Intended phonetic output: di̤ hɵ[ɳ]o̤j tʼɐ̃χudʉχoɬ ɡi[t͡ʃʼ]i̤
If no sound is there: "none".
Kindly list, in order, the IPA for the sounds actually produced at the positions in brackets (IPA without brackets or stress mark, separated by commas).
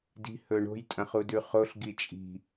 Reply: ɳ, t͡ʃʼ